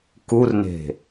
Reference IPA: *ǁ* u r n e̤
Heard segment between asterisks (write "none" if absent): k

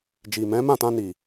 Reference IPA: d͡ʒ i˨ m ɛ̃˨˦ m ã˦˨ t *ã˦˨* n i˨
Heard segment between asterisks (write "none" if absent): ã˧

